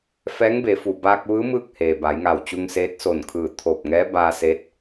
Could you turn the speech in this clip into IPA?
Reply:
f ɛː˧˥ ŋ b e˩˧ f u˩ b aː˧ k̚ ʋ ɯː˧˥ m ɯː˥˨ k̚ h eː˩ b a˩˧ j ŋ a˧˩ w t͡ɕ u˧ ŋ s eː˧˥ t̚ s o˧˩ n kʰ ɯː˧˩ t̪ʰ oː˧˩ p̚ ŋ ɛː˧˥ b aː˧ s eː˧˥ t̚

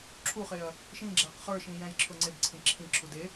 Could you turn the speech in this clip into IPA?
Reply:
ǁʰ u χ e ɐ̯ | ʃ ĩ ɡ͡ǁ æ q χ ə˞ ʃ ĩ j æ̃ j ǁʰ ʊ ŋ͡ǀ e b ǀʰ ĩ ǁʰ ĩ ǁʰ u d e

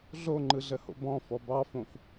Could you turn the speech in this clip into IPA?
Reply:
ɮ o ŋ͡ǃ ɯ ɮ ə h o̰ b ɔ̃ f ɔ b ɑ f õ f

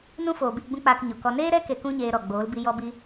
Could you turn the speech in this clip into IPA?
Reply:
n ũ˦ f oː˨ b i˦˨ ɡ͡b ũ˦ k͡p aː˧ k ɲ o˨ k ɔ˧ n eː˦ ɾ ɛ˦ k e˧ k ũ˦ ɲ eː˧ ɾ ɔ˨ ɡ͡b oː˨˦ l b i˧ j ɔ˦ b i˦

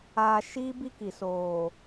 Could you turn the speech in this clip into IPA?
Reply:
aː˨ ʃ iː˦ b i˦ k i˨ s oː˨

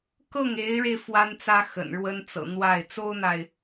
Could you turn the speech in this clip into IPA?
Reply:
k ɤ˥˩ ŋ e˧˥ ɪ̯ ɻ e˧ ɪ̯ f w a˥ n t͡s ä˥ x ə̰˨˩ n ɻ w ə˥ n t͡s ɤ̰˨˩ n̪ w a˥˩ ɪ̯ t͡s o˥ ʊ̯ n̪ a˨ ɪ̯

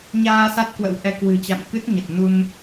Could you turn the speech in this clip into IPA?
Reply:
ɲ aː˧ s a˦˥ t̚ k w ə̰˧˥ w ʔ ɛ˨˦ k w ɨ̤˨˩ t͡ɕ a̰˧˨ m k ɨ˦˥ t̚ ɲ ə˨˩ t̚ n u˧ n

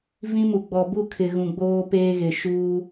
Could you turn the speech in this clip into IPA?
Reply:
v ĩ˦ m u˨ ɡ͡b ɔ˨ b u˦˨ kʰ ɪ˨ ɣ ũ˨ ɡ͡b oː˦ p eː˦ ɣ ɪ˨ ʃ uː˦

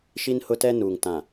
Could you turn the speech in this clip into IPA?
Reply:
ʃ i˦ n h ʊ˦ t ɛ˦ n uː˨ ŋ t ã˨

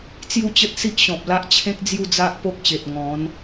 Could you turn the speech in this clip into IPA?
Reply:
t͡s j u˥˧ t͡ɕ ə˦ t̚ s i˦ ʔ ɕ ɔ̃˨ p̚ l a˦ ʔ t͡ɕʰ ẽ˦ k̚ d͡z j u˥˧ d͡z a˦ ʔ p o˦ k̚ ɕ e˨ t̚ ŋ ɔ̃˨˦ n

